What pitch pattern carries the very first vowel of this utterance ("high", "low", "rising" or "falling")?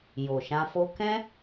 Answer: low